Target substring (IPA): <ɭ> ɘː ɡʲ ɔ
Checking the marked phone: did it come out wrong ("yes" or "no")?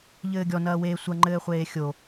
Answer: yes